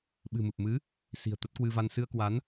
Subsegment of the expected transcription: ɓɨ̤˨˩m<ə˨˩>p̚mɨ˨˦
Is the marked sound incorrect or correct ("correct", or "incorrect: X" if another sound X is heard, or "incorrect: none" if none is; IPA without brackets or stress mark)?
incorrect: ɨ˨˩